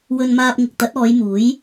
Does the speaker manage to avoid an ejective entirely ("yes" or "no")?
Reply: yes